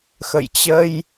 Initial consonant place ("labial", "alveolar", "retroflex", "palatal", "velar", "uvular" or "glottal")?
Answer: velar